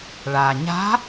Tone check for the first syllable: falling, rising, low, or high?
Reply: low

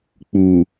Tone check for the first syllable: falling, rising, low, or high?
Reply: low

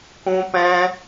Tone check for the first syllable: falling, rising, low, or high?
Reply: high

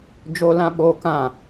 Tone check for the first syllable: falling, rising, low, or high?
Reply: high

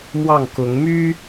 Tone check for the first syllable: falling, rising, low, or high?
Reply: falling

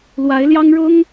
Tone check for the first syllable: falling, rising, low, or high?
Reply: rising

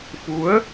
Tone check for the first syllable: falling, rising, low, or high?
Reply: rising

